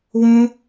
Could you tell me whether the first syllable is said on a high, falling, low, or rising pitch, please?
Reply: high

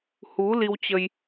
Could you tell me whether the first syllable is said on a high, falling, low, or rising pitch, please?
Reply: rising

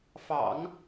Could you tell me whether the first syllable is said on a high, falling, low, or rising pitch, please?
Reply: low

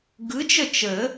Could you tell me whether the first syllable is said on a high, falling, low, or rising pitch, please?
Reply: rising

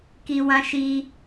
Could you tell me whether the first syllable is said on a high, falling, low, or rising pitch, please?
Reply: low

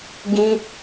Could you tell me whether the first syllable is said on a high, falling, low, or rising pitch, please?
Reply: high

